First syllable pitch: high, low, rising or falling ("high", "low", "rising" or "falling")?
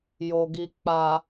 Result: low